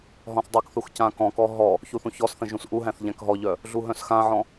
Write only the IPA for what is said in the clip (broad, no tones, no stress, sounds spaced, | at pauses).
ɦ ɔ̃ θ dˤ œ k θ u x c ã k ɔ̃ k ɔ ɦ ɔ | ç u θ ũ ç ɔ s θ ə̃ ʒ ũ s ʔ u ɦ æ̃ θ ʎ æ̃ k ɦ ɔ ʎ œ | ɮ u ɦ œ̃ s x ã ʕ ɔ̃